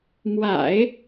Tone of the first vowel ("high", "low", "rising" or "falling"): low